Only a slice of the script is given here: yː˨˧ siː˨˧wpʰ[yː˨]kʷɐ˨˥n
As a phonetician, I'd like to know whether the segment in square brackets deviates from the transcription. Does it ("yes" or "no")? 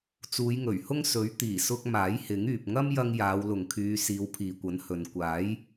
yes